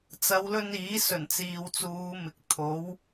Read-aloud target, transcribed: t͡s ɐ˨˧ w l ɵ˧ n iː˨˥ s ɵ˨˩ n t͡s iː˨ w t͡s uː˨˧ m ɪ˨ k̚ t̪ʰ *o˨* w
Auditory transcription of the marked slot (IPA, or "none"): o˨˥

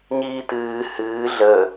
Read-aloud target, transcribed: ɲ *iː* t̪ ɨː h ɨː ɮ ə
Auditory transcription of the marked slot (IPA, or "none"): iː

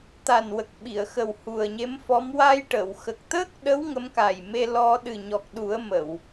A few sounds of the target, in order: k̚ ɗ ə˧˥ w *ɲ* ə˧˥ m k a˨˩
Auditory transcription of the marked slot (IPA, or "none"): ŋ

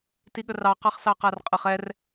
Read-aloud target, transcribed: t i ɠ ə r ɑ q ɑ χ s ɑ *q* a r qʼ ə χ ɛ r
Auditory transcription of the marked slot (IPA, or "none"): q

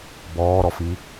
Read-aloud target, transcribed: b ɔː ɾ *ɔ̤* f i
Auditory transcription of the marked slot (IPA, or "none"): ɔ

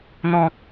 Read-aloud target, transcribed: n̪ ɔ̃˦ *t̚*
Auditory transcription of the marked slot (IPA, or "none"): k̚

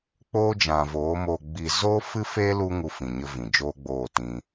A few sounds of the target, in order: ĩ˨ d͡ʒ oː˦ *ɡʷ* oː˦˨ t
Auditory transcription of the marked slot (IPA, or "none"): ɡ͡b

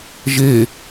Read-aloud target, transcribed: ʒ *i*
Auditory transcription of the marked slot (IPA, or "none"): e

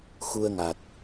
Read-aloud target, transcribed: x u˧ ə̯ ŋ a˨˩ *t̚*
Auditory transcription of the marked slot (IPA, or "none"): t̚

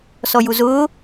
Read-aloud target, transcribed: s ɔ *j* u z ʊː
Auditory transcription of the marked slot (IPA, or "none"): j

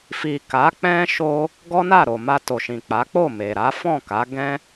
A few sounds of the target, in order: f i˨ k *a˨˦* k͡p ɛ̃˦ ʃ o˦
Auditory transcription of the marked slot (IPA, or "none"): a˨˦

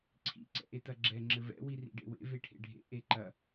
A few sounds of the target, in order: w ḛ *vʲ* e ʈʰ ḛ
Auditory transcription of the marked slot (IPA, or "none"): v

